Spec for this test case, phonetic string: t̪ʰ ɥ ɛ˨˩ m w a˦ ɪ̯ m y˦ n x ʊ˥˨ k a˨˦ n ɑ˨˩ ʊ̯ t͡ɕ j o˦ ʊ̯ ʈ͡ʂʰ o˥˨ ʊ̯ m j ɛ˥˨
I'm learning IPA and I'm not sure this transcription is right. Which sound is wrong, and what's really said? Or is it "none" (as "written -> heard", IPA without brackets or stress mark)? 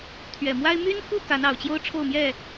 ʊ˥˨ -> u˥˨